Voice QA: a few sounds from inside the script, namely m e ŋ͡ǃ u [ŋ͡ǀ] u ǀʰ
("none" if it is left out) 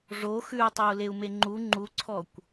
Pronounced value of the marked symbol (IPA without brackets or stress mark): ŋ͡ǃ